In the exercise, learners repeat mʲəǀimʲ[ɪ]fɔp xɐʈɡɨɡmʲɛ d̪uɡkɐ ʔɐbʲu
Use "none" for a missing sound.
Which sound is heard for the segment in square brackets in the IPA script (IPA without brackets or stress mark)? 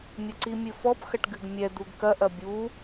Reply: ɨ